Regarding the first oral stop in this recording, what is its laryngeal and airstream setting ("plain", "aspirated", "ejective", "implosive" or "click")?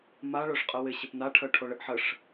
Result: ejective